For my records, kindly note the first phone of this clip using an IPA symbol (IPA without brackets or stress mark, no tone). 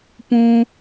p